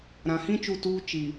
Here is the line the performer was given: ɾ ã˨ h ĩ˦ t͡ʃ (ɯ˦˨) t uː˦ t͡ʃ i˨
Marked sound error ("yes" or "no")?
yes